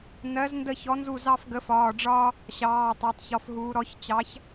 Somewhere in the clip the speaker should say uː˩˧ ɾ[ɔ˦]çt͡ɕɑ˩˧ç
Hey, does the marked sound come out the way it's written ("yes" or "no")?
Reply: no